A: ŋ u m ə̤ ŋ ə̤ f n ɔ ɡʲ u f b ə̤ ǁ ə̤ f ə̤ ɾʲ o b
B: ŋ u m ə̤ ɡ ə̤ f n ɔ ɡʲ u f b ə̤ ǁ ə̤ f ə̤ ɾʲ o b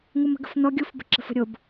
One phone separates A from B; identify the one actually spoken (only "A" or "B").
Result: B